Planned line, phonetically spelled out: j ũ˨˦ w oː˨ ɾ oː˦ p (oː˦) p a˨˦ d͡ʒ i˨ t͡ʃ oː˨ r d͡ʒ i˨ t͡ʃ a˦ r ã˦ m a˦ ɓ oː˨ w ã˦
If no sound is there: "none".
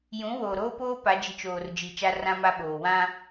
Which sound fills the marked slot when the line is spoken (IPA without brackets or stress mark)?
oː˦